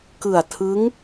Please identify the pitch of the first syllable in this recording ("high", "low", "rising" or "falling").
low